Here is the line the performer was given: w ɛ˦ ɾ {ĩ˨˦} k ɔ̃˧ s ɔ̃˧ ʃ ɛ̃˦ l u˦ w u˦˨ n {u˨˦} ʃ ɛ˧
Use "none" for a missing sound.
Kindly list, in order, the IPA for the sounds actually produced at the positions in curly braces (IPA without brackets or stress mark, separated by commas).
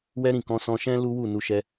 ĩ˦˨, u˧